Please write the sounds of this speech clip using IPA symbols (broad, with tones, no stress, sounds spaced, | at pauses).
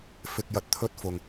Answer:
f ɪ˧ k̚ j ɐ˧ t̚ t̪ʰ ɵ˥ t̚ f ʊ˨ ŋ